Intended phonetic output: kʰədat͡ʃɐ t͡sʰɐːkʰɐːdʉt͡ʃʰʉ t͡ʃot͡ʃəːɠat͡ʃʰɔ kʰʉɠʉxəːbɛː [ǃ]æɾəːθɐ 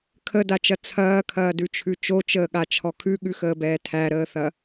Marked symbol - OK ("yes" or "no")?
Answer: no